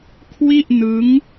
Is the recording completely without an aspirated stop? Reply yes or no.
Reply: no